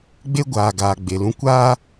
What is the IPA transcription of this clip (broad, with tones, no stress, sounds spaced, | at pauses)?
ɡ͡b e˦ ɡʷ aː˨ ɡ aː˨ ɡ͡b e˨ l ũ˦ kʷ aː˦